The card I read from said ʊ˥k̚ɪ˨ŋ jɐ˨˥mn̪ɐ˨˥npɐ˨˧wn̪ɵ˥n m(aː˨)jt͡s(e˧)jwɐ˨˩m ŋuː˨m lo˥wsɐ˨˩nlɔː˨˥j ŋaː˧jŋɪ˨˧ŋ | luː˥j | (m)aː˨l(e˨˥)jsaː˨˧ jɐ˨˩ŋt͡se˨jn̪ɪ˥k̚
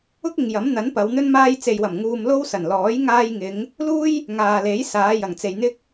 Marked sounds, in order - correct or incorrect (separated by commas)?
incorrect, incorrect, incorrect, correct